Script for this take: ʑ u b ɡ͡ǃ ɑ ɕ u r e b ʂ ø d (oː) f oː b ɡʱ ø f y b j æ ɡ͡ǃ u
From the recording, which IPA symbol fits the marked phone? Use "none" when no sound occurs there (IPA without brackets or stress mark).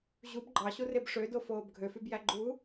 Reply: o